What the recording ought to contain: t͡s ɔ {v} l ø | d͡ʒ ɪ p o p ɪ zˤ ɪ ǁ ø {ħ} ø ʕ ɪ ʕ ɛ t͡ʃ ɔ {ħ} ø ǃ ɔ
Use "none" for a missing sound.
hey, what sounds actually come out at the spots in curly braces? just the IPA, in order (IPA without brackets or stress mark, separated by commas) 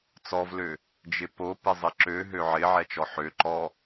v, ɦ, ħ